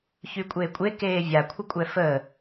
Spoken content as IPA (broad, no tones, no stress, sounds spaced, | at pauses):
ç y kʷʼ eː kʷʼ e k eː vʲ a kʷʰ ə kʷʼ ɛ f əː